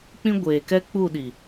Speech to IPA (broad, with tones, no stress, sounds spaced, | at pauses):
k͡p ĩ˦ ɡʷ eː˨ k ɛ˦ k͡p u˦˨ ɗ i˨